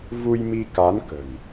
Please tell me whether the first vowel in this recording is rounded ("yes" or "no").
yes